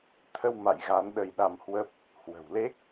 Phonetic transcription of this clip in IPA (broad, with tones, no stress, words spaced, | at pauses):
t̪ʰə˧w ma̰˧˨j ɣa˨˦nɗə˧jɗa˧mhwə˦˥p̚ | hwə̤˨˩wle˦˥k̚